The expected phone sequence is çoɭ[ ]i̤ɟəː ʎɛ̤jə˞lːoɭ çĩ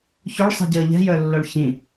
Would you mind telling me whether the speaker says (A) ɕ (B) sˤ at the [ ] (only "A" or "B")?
B